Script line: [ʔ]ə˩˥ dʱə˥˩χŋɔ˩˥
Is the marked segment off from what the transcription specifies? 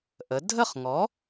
no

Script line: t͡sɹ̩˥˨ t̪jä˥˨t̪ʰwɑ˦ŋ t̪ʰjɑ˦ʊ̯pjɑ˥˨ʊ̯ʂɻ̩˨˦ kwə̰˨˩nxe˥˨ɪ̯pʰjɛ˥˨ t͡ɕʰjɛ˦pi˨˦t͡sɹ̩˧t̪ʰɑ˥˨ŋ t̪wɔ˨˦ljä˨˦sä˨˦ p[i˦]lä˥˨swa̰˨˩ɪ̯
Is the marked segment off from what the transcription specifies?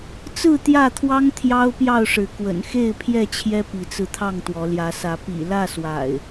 yes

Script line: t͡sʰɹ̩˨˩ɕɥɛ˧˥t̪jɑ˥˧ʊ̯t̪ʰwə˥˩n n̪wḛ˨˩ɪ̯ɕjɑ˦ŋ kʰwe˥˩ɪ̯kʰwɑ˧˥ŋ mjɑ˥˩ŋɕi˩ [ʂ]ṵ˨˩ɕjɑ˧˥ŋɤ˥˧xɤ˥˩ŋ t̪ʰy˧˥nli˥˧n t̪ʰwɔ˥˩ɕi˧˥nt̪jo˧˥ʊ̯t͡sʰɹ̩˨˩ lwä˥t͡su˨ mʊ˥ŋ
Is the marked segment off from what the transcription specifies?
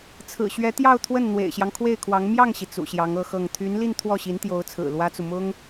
yes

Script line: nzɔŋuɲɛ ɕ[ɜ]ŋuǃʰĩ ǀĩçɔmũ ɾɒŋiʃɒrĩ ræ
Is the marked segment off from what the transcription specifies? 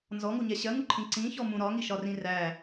no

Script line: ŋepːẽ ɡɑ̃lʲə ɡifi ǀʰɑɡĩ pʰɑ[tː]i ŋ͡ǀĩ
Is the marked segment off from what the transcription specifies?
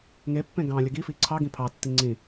no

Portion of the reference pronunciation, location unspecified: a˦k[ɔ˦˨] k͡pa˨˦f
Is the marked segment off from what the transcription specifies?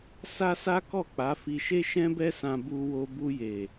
no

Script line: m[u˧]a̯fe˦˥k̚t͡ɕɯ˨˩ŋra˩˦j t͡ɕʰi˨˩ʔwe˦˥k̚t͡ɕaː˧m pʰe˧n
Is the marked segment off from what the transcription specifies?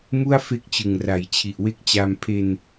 yes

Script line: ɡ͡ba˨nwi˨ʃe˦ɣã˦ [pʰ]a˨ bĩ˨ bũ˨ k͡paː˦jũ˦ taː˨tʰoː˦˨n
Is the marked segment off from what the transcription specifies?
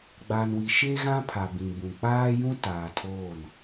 no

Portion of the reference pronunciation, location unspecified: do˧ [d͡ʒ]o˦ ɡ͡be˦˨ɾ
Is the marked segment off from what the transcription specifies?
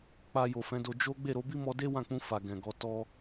no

